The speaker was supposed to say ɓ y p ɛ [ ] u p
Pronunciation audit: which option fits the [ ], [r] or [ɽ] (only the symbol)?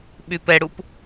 ɽ